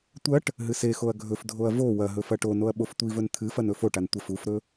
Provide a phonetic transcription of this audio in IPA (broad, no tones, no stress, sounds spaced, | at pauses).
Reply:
tʷ ɐ ʈ | ɦ ɨ s e x o ɐ̯ ɡʱ ɵ f dʱ o ɐ̯ v o w ɐ ɦ ɵ f ɐ ʈ o n o ɐ̯ ɓ o f tʷ i v ɵ n t̪ʰ ɨ f ɐ n ɵ f o ʈ a n tʷ ɐ f u f ɾ ɵ